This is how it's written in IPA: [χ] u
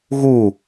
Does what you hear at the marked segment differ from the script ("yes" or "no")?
yes